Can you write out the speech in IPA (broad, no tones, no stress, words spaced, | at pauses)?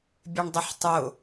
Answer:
bʲeɳdˤɪħtˤʊ